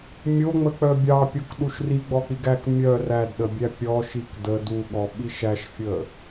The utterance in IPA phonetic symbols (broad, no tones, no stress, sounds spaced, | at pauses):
mʲ o ŋ͡m ə k͡p œ bʲ ɑ pʲ o k ɗ u ʃ r i ɡ͡b ɔ k͡p i ɡ æ k mʲ œ r æ d ɗ ə bʲ æ pʲ ɔ ʃ i k d ə d u ɠ ɔ ɓ i ʃ æ ʃ fʲ ə